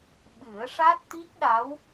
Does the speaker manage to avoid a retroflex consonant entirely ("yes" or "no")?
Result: no